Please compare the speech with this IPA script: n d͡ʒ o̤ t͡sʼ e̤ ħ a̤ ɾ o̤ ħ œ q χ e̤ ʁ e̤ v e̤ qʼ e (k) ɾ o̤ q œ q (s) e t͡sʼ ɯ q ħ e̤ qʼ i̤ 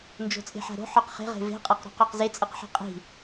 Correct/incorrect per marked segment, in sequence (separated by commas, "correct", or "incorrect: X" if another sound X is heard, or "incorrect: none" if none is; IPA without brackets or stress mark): incorrect: q, incorrect: z